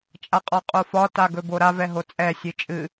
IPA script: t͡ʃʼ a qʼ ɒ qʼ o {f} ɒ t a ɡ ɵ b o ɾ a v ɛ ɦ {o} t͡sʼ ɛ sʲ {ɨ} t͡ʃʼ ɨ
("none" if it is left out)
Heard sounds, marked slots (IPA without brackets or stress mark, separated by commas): f, o, ɨ